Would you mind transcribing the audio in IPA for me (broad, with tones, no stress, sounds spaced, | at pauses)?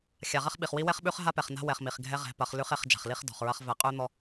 xʲ a˨ ʁ ɐ˦ χ ɓ i˨ χ w i˦ w ɛ˦ χ ɓ ʉ˦ χ ɦ a˦ p ɛ˨ χ n a̤˦ w ɛ˨ χ m i˨ χ ɡʱ ɛ˦ ʁ ɛ̤˨˦ p ɐ˨˦ χ l ʉ˦ χ e˨˦ χ d͡ʒ a̤˨ χ l i˦ χ d ɔ̤˨ χ ɹ ɐ˦ χ v ɛ˨ qʼ ʉ˦ n̪ ɔ˦